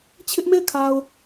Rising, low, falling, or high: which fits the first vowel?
high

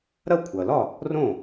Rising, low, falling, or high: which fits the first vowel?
falling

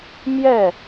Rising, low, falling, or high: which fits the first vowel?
falling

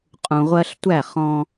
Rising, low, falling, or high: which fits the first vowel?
low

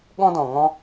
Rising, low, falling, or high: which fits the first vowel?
high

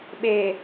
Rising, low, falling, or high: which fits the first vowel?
low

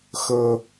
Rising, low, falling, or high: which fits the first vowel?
high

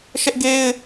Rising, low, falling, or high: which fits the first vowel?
high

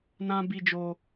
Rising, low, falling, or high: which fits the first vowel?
high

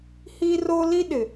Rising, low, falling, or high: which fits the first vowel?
high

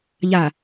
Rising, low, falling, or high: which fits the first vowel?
low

